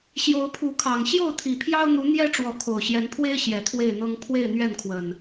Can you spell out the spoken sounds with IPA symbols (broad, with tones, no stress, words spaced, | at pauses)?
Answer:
ɕjo˨˦ʊ̯pʰu˨˦kʰɑ˨˩ŋ ɕjo˥˨ʊ̯t̪ʰi˨˩pʰjɑ˦ʊ̯n̪u˨˦ n̪jɛ˦ ʈ͡ʂwɔ˨˦kʰo˨˩ʊ̯ɕjɛ˨˦npʰwe˦ɪ̯ ɕjɛ˨˦t̪ʰwe˥˨ɪ̯n̪ɤ˦ŋ pʰwe˥˨ɪ̯n̪ɥɛ˥˨nkʰwə˨˩n